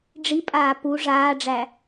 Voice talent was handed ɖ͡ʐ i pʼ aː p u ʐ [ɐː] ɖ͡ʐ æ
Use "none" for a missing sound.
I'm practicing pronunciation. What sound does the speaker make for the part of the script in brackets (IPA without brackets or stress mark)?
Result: aː